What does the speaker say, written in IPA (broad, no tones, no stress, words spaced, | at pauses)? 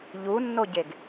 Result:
ʎunːoɟeɡ